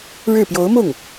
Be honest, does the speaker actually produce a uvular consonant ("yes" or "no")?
no